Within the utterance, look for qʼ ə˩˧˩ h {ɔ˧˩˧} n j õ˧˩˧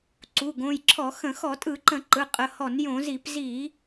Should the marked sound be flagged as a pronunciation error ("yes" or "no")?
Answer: no